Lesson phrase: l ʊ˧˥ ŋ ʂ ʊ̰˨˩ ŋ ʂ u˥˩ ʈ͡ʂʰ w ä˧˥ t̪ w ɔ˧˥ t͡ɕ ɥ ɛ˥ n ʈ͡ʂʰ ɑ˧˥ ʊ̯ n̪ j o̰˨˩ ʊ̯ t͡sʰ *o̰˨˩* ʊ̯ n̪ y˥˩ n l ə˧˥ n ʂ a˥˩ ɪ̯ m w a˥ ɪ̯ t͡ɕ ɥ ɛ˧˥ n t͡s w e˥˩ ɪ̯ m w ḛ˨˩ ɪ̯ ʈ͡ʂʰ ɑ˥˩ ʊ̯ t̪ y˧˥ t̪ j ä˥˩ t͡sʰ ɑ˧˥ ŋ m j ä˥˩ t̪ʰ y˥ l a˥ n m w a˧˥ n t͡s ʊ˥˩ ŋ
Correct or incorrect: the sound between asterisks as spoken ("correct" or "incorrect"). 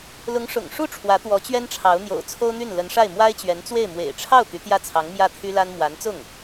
incorrect